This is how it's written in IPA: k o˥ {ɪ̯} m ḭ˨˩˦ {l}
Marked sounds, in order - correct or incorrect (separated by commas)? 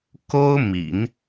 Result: incorrect, incorrect